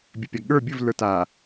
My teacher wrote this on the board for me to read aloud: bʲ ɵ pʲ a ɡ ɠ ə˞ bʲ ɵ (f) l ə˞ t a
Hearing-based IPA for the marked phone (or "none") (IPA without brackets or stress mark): v